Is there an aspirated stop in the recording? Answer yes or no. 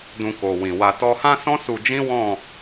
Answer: no